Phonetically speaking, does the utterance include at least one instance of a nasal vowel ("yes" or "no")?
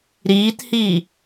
no